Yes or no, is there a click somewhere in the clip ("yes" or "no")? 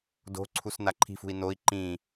yes